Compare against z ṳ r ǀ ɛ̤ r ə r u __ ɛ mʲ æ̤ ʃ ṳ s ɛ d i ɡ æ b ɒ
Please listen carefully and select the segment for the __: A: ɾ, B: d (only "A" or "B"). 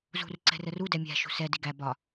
B